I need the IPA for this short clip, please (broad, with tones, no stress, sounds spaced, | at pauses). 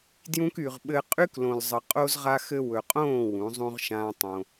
d j ũ˧ k y˨ ʁ ɓ ɘ˦ qʼ y˦ k l õ˨ l zˤ ə˨ qʼ o˦ z ʁ a˦ x ɘ˦ w ɵ˨ qʼ õː˦˨ w ũ˨˦ zˤ ũ˦ ʁ ʃ ãː˦ tˤ õ˧